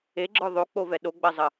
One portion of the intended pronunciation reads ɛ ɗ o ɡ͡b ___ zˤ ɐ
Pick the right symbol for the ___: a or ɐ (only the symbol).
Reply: ɐ